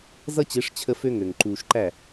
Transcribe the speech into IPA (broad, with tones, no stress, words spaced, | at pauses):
zʌ˦t͡ɕe˨˦ʂ t͡ɕʰə˦fø˦ŋø˨ŋ ǃuː˨ʃǃæ˦˨